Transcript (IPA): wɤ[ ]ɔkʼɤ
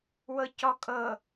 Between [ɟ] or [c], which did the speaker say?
c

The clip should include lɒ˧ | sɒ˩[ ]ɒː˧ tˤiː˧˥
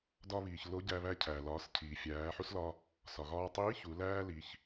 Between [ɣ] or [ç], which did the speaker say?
ɣ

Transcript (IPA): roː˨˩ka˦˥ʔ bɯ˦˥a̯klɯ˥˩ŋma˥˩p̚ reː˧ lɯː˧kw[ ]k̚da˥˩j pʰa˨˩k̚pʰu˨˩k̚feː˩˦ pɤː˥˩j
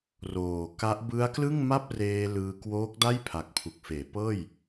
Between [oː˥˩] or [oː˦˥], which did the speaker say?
oː˦˥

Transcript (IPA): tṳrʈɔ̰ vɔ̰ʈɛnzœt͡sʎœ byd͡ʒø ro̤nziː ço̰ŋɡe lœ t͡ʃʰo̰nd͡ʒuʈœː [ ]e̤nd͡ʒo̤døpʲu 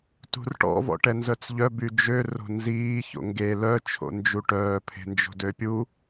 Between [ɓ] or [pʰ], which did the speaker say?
pʰ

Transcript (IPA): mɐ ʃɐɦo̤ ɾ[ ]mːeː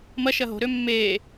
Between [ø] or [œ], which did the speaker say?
ø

